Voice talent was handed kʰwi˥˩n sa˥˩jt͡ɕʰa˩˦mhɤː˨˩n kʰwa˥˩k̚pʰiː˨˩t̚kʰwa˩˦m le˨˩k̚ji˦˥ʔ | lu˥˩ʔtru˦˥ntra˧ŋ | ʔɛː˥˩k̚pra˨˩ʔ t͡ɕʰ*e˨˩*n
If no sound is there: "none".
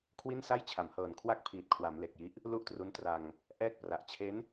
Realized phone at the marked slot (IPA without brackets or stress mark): e˦˥